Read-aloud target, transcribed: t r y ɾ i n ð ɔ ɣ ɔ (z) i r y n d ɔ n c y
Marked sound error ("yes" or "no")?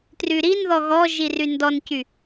yes